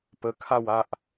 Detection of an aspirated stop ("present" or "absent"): present